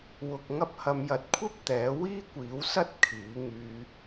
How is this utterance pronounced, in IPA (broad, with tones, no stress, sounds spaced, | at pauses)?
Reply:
w ʊ˧ k̚ ŋ ɐ˧ p̚ h ɐ˨ m j ɐ˨ t̚ kʷʰ ɐ˥ p̚ t̪ ɛː˨˥ w iː˥ kʷ iː˨˥ w s ɐ˥ t̚ kʰ iː˨˥ ŋ yː˧